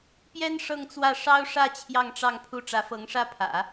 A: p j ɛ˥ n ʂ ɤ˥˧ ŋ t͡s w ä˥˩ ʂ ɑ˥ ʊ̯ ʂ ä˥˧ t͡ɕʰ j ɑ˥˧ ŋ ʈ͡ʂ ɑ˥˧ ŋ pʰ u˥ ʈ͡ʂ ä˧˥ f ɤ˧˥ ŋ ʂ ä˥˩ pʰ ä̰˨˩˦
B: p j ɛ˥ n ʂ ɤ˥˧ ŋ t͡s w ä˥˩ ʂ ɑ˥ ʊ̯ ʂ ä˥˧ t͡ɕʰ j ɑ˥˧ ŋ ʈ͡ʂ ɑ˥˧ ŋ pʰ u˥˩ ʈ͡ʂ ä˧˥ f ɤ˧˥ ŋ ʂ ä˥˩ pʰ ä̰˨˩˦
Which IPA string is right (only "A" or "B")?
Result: B